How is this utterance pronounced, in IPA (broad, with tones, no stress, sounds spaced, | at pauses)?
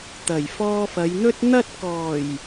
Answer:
t̪ ɐ˨˩ j f ɔː˧ f ɐ˨˧ j n̪ ɵ˥ t̚ n̪ ɐ˥ t̚ k ɔː˨˩ j